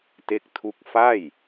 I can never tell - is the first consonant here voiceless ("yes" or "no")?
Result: yes